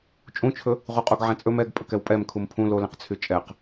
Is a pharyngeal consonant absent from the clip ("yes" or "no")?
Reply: no